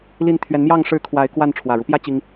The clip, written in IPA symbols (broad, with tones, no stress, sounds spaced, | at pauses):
l i˨˦ n t̪ʰ ɥ ɛ˨˦ n m j ɑ˥˨ ŋ ʂ ɻ̩˥˨ kʰ w a˨˦ ɪ̯ k w a˥˨ n ʈ͡ʂʰ w ä˨˩ ɻ u˦ p j ä˦ t͡ɕ i˦ ŋ